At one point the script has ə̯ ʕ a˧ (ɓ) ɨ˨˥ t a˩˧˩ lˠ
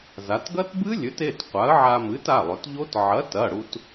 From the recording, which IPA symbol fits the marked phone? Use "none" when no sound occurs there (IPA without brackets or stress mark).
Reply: m